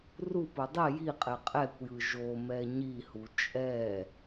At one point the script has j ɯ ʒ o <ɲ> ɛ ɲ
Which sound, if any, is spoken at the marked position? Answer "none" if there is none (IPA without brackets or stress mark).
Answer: m